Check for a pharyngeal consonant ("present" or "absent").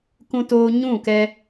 absent